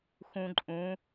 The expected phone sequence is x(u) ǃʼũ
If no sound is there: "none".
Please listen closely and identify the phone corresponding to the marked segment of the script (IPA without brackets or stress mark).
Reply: ũ